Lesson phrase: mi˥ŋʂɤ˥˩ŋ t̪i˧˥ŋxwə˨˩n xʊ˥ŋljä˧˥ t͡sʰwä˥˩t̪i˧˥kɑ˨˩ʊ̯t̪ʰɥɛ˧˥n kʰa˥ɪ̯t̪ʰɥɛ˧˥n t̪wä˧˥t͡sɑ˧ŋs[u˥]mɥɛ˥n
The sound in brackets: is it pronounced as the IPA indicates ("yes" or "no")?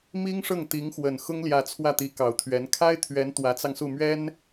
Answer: no